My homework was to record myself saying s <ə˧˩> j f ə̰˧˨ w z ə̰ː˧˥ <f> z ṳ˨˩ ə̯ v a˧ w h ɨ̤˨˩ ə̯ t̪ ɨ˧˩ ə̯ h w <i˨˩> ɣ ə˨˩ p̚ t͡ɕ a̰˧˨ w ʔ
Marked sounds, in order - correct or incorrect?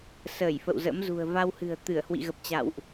incorrect: əː˧˩, incorrect: m, incorrect: ḭ˧˨

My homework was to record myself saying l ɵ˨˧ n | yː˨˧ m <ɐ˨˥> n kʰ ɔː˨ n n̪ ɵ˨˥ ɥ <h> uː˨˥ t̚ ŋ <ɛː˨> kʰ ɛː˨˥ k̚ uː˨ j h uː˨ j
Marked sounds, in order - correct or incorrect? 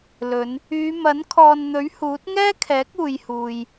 correct, correct, incorrect: ɛː˥

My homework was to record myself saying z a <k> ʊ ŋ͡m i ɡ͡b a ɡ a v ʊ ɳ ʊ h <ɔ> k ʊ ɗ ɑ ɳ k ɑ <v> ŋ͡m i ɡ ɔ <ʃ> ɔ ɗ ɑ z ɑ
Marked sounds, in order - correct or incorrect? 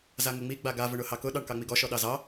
incorrect: ŋ, incorrect: ɑ, incorrect: none, correct

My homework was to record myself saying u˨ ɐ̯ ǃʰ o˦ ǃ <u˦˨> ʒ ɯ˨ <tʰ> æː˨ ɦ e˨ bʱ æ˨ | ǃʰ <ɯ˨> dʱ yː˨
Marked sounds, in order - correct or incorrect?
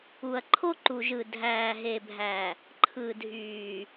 incorrect: u˨, incorrect: dʱ, correct

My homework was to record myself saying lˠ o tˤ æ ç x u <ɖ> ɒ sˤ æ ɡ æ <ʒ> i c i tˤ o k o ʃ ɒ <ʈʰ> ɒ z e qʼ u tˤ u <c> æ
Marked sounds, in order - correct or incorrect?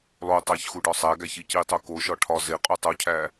correct, incorrect: ç, correct, incorrect: cʰ

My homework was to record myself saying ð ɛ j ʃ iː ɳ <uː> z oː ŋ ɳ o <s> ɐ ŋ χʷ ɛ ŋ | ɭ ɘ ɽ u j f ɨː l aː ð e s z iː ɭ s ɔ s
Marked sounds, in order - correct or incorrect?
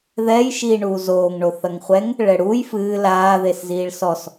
correct, incorrect: θ

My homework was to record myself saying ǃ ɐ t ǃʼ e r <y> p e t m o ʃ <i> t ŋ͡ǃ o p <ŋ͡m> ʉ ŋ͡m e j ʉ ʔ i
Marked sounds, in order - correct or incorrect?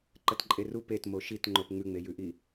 incorrect: u, correct, correct

